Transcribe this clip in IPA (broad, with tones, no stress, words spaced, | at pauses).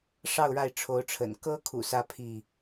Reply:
ʂɑ˥˨ʊ̯ɻa˥˨ɪ̯ ʈ͡ʂʰo˨˦ʊ̯ʈ͡ʂʰə̰˨˩n kɤ˦kʰṵ˨˩sä˨˦ pʰi˥˨